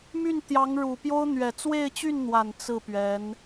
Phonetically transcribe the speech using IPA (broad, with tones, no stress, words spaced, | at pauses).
my˥˩nt̪jɑ˧˥ŋ ɻu˨˩pjo˥ʊ̯ n̪ɥɛ˨˩t͡swe˥˧ɪ̯t͡ɕy˥˩nn̪wa˨˩n t͡sɹ̩˥˩pɥɛ˧˥n